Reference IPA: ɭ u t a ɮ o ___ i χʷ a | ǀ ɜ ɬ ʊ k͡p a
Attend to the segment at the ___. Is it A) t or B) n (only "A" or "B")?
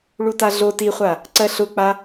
A